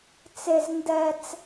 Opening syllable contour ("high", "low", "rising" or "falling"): high